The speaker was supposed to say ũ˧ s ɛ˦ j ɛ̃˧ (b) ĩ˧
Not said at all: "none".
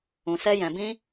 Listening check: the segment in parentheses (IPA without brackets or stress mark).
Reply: b